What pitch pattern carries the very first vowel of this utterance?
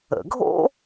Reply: low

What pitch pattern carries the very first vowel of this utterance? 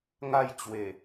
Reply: falling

